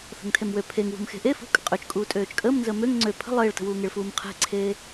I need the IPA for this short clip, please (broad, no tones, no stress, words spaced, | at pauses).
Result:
θə̤ŋtʰemwø pʰeŋwṳm xe̤ʔe fṳkʼə̤ qʼøt͡ʃkʼuː tʼøːt͡ʃkʼəːmnzəː møŋ ŋ͡ǀø pʰə̤ lˠeːɭtə̤wuːŋeɭ fuːmqʰe̤ǀʰeː